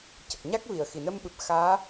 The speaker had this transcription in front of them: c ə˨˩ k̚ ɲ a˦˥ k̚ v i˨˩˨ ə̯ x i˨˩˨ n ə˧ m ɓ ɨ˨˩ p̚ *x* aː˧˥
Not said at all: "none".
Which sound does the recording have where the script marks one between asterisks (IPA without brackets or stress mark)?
x